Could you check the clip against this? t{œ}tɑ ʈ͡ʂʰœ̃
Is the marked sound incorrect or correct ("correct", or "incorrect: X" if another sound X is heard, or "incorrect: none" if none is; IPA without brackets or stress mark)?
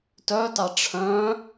correct